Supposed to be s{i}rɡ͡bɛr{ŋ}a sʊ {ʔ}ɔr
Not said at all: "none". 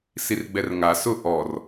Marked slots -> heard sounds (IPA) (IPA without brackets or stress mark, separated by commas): i, ŋ, ʔ